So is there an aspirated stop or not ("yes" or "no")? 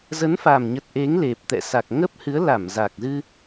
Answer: no